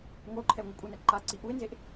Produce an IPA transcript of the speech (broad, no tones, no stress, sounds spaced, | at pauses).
ŋʷ ɤ ʊ̯ ǃʰ ɛ ʊ̯ ŋʷ a kʷʼ ɯ n ɛ ǃ a ǀ i ʔ u ɪ̯ n z e ʔ